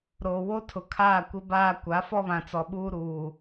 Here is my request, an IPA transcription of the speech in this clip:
ɾ oː˨ w o˦ tʰ ʊ˨ kʰ aː˦˨ kʷ ɪ˦ b aː˦ kʷ a˨˦ f ɔ˦ β ã˨ t͡s ɔ˨ ɓ uː˦ ɾ uː˨

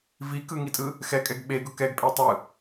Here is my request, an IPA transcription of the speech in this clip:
v i k ɯ ŋ i tʼ ɯ | x ɛ kʼ ɛ ɡ ɓ e ɡ ʊ k ɛ ɡ pʼ e tˤ ɯ

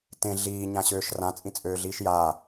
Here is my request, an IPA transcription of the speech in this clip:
t ẽ ɮ iː ɲ ã ɕ øː ʃ r ã t͡sʼ ĩ t͡sʼ øː ɮ iː ʃ j aː

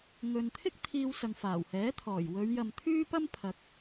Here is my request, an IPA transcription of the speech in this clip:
ŋ ɵ˨ n t̪ʰ ɪ˥ k̚ t̪ʰ iː˧ w s ɐ˨ ŋ f aː˨˩ w h ɛː˨˥ t̪ʰ ɔː˨˩ j w ɵ˨˧ ɥ j ɐ˨ m t̪ʰ yː˥ p ɐ˥ m pʰ ɐ˨ k̚

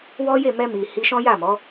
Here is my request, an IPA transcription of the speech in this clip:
w ɔ˦ j e˦˨ m ɛ˧ m i˨ h i˧ ʃ ɔ̃˦ j a˦˨ m ɔ˨˦

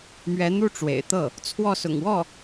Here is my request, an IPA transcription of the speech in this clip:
m ɥ ɛ˧˥ n̪ u˥˩ ʈ͡ʂ w ḛ˨˩ ɪ̯ t̪ ɤ˥˩ | t͡sʰ w ɔ˥˩ s ʊ̰˨˩ ŋ w ɔ˥˩

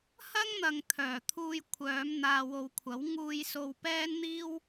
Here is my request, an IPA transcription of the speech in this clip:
h ɐ˥ ŋ n̪ ɐ˨ ŋ t̪ʰ œː˨˩ t̪ʰ uː˧ j kʷʰ œː˨˧ m n̪ aː˨ w o˨ w kʷʰ ɐ˨˥ w ŋ uː˧ j s o˧ w p ɛː˥ n n̪ iː˥ w

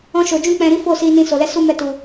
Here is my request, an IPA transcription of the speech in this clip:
ɔ̃˧ ʃ o˨ d͡ʒ ũ˧ k͡p ɛ̃˨ ɾ i˨˦ f o˦˨ s i˧ n ĩ˧ s o˨ l ɛ˧ s u˦ m ɛ˧ t u˨

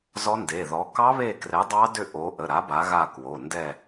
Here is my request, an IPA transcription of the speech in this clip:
z ɔ˦˥ n d e˩˧˩ ð ɔ˨˥ k ɑ˦˥ β e˦˨ k r ɛ˨˥ dˤ ɑ˦˥ d ʏ˦˨ ʔ o˨˥ ʔ ə˩˧˩ ɾ a˨˥ b a˨˥ ɣ a˦˨ k w o˩˧˩ n d ɛ˦˨

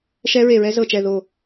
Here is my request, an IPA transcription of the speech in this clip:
ʃ ɛ˦˥ ɹ e˧˩ ɹ ɛ˦˥ z ɤ˧˩ t͡ʃ ɛ˧˩ ð o˧˩

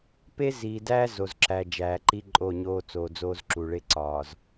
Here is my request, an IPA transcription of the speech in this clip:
p e˦ z iː˨ d æː˦ z o˨ z ǁ æ˨ d͡ʒ æː˨ ǃ i˦ ǃʼ o˦˨ ɲ oː˦ t͡s oː˨ d͡z oː˦ z ǁ u˨ ɭ e˦ ǀ ɒː˨ z

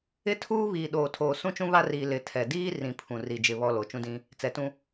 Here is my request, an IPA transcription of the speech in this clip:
ɪ˦ tʰ uː˦ β iː˨ ɗ oː˨ tʰ oː˨ s ũ˦ t͡ʃ ũ˦ β a˦ r iː˨ l ɪ˨ tʰ ɛ˨ d iː˦ r ĩ˨ pʰ ũ˨ r i˨ d͡ʒ ɪ˦˨ β ɔ˦ l o˨ t͡ʃ ũ˦ d ĩ˦ | t͡s ɛ˨ t ũ˦

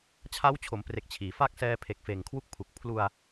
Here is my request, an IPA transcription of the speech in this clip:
t͡ɕʰ a˦˥ w t͡ɕʰ o˩˦ m p r e˨˩ k̚ t͡ɕʰ iː˩˦ f a˥˩ k̚ s ɛː˧ pʰ e˨˩ k̚ f eː˨˩ ŋ kʰ w u˦˥ k̚ pʰ u˨˩ k̚ pʰ l u˧ a̯

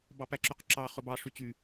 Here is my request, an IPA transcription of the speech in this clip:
b ɑ p æ ǁ y q ǁ ɑ χ ɵ b ɑ ʂ y t͡ɕ y

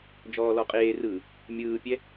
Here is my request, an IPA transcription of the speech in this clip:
d͡ʒ ɔː l ɔ qʼ eː r ɯː | mʲ ɯː pʲ ɛ

